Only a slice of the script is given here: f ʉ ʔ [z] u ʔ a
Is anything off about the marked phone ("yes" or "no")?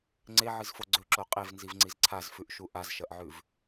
yes